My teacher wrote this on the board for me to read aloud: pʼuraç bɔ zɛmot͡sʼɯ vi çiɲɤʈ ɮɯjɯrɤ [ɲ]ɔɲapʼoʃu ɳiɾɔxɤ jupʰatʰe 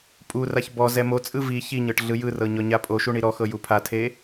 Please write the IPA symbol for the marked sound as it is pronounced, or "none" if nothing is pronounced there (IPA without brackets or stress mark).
ɲ